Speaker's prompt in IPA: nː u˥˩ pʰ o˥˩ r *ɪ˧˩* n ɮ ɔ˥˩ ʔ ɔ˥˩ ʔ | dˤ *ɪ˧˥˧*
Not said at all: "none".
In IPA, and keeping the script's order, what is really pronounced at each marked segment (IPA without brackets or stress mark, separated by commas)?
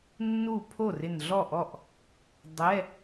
ɪ˧˩, ɛ˧˥˧